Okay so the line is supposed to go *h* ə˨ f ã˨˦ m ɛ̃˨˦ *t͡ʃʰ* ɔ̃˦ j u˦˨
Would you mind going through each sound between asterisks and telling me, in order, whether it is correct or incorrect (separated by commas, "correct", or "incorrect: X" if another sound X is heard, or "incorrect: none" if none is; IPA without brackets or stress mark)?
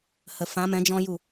correct, incorrect: d͡ʒ